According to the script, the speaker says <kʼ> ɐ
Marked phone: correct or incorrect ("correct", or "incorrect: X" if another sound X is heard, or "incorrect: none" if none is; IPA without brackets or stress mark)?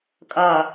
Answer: correct